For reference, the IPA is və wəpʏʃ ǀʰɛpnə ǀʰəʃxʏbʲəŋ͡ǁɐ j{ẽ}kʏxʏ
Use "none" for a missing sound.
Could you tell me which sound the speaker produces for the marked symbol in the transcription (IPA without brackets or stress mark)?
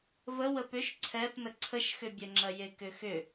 e